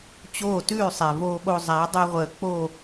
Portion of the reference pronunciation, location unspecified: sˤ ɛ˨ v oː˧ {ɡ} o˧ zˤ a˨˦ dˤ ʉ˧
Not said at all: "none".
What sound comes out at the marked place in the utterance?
ɓ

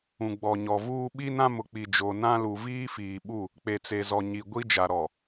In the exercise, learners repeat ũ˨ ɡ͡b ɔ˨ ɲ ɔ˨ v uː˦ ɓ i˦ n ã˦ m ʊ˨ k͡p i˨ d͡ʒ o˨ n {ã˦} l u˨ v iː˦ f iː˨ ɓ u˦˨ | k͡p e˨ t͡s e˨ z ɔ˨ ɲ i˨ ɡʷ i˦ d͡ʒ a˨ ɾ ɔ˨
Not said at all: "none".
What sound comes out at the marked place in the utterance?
ã˦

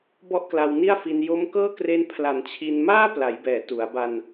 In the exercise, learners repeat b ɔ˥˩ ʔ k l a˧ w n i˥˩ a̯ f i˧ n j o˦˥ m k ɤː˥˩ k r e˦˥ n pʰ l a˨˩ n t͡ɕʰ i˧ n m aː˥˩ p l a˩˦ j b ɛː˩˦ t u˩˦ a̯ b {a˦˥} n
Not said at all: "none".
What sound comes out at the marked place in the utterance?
a˧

